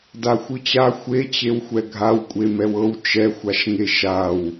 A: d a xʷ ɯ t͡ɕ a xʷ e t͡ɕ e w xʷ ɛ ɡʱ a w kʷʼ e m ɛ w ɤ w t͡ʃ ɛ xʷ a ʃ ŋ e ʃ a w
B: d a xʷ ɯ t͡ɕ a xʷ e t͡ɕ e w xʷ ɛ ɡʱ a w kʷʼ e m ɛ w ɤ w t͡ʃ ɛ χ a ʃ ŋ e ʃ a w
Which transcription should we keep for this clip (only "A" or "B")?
A